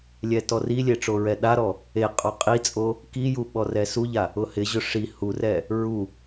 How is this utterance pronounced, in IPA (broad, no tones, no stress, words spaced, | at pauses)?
lʲɛtɔrilʲe ʈ͡ʂoɹɛɗaɾɔ | eqʼɔ qʼit͡sʼo | kiju ɓɔrɛsuʎa | ʊhɪʑʊ ʂi hurɛ | ɹu